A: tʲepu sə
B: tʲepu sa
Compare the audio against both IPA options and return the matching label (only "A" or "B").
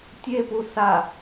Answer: B